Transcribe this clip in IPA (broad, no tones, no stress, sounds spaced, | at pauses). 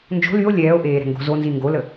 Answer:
n d͡ʒ o̤ l y o̯ lʲ ɛː o̯ ʔ eː ɾ ɛ̤ ŋ ɡ o̤ z o n z i ŋ ɡ o l ə